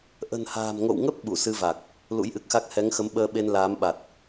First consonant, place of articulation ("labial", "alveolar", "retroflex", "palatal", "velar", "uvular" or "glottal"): glottal